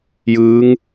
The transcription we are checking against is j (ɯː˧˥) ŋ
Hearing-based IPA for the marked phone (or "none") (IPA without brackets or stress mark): ɯː˧˥